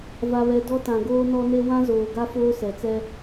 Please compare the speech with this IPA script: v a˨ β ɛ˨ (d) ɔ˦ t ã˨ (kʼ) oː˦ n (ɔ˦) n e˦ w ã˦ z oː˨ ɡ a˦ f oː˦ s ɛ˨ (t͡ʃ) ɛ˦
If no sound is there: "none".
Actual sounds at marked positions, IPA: d, ɡ, ɔ˦, t͡s

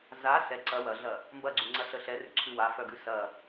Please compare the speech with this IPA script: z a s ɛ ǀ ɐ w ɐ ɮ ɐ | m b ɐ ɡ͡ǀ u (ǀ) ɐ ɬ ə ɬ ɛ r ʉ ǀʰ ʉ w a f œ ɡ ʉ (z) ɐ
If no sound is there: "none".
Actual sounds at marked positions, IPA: ŋ͡ǀ, s

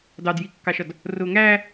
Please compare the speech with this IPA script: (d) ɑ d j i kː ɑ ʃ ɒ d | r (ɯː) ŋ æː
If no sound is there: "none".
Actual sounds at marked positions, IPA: d, ʊː

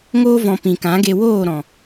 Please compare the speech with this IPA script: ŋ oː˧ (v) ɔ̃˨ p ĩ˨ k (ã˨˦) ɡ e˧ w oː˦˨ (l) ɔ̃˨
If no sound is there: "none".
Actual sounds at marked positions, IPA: v, ã˨˦, ɾ

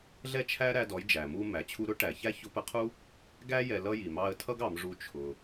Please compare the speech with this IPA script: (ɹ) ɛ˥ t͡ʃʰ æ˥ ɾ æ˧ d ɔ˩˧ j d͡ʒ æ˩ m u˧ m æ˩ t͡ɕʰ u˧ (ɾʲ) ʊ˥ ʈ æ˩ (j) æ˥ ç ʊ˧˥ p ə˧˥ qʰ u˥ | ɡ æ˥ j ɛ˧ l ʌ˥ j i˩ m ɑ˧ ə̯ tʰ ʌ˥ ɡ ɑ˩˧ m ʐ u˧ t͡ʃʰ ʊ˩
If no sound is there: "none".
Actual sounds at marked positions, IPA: ɮ, ɾ, ç

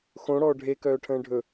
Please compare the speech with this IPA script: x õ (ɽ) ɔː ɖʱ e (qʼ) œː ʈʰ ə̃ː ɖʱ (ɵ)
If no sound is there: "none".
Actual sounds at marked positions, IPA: ɽ, k, ɵ

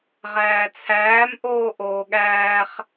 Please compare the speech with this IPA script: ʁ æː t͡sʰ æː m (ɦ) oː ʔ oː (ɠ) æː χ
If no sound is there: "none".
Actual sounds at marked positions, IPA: ʔ, ɠ

